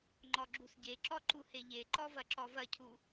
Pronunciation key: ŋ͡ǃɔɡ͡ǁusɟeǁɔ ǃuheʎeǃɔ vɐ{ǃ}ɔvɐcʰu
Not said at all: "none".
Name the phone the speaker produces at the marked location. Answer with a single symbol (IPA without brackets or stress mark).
ǁ